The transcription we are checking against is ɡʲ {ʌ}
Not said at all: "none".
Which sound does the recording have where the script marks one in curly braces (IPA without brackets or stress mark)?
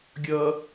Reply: ʌ